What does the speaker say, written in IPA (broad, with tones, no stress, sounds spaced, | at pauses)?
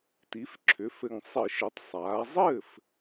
t i˩˧ f ǁʰ ʏ˩˧ f ɘ˨˩ ŋ sˤ ɘ˧˩˧ ʃ ɘ˩˧ tˤ sˤ aː˩˧ zˤ ɘː˥˩ f